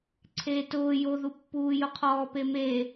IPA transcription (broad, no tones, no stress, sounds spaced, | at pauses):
ǀʰ eː t ʊː j o ð u pː uː j ʊ qʰ ɔː p e m e